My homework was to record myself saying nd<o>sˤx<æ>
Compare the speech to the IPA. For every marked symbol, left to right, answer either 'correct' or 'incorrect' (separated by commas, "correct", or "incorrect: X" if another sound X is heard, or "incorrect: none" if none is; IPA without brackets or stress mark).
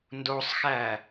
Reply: correct, correct